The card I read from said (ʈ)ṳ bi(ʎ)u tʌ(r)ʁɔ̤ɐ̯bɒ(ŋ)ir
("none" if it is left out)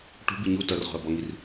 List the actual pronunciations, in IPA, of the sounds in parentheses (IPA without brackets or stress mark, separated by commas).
ʈ, ɲ, r, ŋ